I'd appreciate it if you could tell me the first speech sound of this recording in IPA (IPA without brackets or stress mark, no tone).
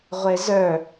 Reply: ʁʷ